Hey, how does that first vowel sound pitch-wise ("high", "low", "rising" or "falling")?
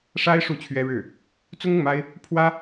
high